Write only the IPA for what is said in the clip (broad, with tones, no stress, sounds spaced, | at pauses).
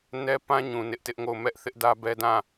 n ɛ˦ p ã˦ ɲ ũ˨ n ɪ˦ ʔ t ɪ˦ ʔ ŋ o˦˨ ʊ̯ m ɛ˦ ʔ θ ɪ˦ ʔ d ä˦ b ɛ˦ d ã˦˨